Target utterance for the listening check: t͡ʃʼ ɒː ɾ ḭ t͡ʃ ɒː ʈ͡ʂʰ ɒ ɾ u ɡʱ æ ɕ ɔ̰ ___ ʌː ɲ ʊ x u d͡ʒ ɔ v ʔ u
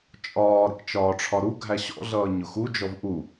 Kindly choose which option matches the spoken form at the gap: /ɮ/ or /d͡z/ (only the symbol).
ɮ